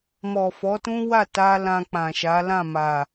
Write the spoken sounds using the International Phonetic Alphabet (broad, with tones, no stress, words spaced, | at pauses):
mɔ˨fɔ˨˦tũ˦ wa˦˨ta˧ lã˧k͡pã˨ʃa˨˦ lã˦˨ma˨